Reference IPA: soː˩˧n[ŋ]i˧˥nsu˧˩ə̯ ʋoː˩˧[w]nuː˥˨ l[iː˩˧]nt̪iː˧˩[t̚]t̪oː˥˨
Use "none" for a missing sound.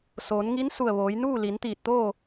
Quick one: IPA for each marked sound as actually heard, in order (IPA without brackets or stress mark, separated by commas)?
ŋ, j, i˩˧, t̚